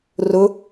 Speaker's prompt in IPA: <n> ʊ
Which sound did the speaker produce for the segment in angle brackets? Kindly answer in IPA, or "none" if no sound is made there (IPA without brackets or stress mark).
r